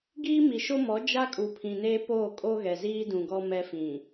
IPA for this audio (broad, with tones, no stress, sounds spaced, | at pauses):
ɡ iː˦ m i˨ ʃ o˦ m ɔ˨˦ d͡ʒ a˦ kʼ u˨ pʰ ĩ˨ n eː˦ p oː˦˨ kʼ o˦ ɣ ɛ˨ z iː˦ d ũ˨ ɡ ɔ˦ m ɛ˦ f ĩ˨